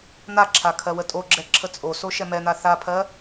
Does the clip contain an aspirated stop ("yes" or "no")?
yes